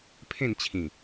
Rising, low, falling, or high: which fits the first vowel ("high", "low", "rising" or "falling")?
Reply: falling